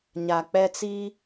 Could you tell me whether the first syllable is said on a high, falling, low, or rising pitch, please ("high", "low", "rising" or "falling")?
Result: low